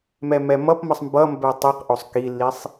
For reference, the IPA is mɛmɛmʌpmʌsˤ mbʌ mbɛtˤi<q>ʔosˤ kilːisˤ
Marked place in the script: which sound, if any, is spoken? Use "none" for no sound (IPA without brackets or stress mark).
q